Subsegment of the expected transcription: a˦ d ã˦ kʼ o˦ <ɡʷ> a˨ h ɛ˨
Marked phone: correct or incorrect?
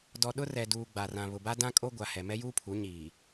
correct